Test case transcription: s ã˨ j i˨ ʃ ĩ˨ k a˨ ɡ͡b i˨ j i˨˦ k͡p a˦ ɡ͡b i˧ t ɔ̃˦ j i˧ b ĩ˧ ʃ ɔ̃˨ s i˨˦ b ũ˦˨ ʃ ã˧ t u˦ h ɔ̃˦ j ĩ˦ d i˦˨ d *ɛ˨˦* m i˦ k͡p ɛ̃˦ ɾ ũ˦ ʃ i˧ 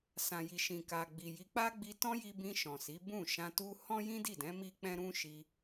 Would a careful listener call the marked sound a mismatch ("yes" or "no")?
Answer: yes